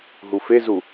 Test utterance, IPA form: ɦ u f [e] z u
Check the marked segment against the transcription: correct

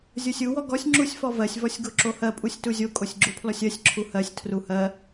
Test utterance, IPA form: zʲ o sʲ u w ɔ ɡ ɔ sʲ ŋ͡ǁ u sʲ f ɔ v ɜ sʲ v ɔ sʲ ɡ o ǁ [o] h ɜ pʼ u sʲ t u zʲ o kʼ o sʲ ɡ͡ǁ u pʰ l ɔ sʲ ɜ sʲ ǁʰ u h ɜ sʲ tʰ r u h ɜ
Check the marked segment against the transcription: correct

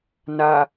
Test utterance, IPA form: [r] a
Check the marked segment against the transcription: incorrect: n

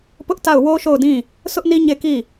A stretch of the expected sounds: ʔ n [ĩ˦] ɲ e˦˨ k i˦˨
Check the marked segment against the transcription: incorrect: i˦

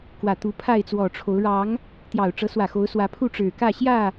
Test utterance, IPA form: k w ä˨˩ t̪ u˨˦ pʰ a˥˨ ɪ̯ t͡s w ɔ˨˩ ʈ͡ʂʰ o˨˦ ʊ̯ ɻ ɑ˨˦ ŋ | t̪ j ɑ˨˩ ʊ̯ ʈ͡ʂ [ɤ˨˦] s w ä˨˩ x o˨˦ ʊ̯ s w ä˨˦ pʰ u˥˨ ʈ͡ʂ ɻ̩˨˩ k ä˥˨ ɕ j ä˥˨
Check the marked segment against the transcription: correct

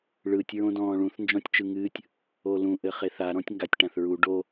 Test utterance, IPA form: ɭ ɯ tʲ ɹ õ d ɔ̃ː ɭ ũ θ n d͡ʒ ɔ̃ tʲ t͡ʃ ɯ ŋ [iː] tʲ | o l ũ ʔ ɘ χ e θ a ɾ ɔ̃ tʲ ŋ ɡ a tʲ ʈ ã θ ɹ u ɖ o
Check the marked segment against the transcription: incorrect: ɨː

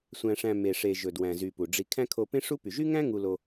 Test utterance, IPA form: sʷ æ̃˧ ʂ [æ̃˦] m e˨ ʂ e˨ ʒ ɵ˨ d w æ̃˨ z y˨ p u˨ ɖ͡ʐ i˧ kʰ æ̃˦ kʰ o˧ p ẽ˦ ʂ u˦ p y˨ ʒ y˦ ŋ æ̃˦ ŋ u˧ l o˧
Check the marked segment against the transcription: incorrect: æ̃˧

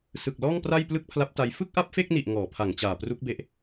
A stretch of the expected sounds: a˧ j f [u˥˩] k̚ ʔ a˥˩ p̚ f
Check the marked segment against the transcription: incorrect: ɯ˥˩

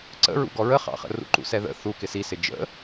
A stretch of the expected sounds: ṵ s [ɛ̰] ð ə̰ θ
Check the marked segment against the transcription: incorrect: ɛ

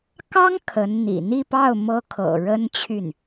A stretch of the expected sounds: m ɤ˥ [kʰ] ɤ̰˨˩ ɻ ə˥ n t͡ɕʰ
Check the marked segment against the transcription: correct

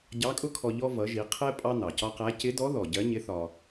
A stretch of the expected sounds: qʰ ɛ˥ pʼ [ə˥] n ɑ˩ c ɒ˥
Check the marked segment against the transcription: incorrect: ɑ˥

